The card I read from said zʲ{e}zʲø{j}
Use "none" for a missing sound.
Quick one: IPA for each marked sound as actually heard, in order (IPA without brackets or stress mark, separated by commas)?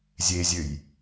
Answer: e, j